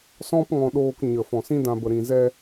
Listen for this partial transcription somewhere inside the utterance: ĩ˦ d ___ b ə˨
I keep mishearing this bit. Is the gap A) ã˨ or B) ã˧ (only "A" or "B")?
B